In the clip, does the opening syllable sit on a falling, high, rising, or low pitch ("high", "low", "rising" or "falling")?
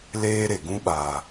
high